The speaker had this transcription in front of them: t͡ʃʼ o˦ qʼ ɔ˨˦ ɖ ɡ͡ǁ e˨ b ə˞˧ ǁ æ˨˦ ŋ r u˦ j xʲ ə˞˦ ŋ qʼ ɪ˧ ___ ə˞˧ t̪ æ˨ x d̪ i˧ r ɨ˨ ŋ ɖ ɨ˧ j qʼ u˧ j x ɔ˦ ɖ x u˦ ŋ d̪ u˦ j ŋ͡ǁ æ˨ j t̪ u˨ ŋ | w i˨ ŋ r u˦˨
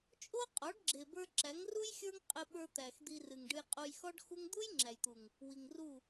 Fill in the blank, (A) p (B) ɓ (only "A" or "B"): B